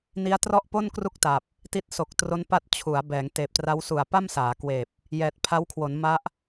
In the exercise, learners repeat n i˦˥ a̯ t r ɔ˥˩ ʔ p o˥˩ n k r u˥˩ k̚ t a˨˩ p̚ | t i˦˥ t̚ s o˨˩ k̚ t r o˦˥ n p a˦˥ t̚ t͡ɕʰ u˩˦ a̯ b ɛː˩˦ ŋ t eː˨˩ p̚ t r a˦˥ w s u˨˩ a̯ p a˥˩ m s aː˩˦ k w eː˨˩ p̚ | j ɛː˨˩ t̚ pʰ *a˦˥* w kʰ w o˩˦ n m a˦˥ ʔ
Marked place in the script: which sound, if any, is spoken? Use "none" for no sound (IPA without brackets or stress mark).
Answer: a˦˥